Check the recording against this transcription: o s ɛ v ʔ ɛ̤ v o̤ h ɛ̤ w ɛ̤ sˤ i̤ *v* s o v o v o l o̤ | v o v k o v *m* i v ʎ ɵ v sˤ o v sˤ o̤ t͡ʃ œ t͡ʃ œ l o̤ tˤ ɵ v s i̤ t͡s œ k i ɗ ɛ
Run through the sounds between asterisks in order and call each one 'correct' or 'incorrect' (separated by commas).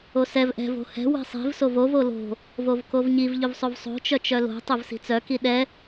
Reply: correct, incorrect